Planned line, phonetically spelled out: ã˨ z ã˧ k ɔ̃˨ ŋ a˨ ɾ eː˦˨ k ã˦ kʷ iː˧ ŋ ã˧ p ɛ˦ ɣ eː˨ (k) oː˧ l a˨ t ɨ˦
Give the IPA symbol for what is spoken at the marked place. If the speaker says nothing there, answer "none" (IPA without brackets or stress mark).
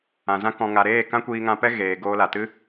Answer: ɡ